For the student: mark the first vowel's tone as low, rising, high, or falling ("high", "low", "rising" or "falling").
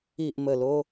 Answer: low